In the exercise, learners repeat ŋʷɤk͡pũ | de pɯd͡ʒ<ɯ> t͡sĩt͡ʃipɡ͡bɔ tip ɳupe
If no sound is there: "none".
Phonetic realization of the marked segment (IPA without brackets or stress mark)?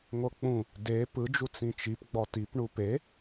u